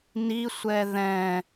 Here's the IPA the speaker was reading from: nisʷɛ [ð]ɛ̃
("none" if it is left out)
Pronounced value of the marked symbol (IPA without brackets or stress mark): ð